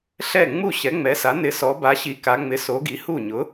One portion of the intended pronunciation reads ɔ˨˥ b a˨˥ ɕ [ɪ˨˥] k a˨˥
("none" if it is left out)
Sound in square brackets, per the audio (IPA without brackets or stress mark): i˨˥